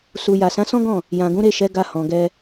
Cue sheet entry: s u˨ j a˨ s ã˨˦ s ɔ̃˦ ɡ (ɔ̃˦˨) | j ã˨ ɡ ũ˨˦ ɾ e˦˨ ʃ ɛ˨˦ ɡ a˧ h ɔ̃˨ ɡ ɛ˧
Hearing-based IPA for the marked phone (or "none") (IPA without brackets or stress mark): ɔ̃˦˨